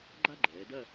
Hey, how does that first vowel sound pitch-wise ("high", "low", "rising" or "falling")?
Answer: high